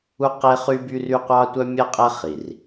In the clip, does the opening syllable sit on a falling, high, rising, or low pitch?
high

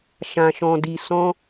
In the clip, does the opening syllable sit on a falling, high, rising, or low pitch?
low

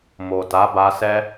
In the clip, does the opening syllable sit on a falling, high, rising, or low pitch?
low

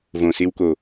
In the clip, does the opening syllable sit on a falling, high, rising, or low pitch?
low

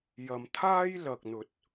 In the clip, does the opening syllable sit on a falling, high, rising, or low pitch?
low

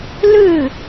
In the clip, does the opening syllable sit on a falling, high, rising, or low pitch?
falling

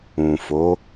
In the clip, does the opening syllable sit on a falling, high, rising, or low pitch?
low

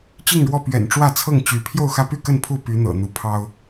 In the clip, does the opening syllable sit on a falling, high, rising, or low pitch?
falling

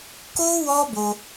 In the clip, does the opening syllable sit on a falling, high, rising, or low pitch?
high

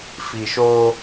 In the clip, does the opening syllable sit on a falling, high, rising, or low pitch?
low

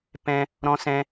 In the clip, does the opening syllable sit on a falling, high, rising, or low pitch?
high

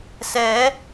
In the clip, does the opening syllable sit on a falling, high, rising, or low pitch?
rising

